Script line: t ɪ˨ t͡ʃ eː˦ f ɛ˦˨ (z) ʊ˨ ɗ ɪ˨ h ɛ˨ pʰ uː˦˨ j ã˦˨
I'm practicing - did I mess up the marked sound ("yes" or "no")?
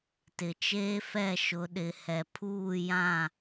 yes